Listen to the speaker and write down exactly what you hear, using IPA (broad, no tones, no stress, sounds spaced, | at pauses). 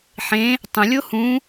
ħ ẽ | tˤ ə̃ lʲ o h ũ